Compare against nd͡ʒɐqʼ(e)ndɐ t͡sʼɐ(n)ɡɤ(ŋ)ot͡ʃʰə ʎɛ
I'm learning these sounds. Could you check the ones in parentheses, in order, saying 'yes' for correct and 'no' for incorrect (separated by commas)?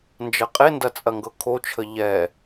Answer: yes, no, no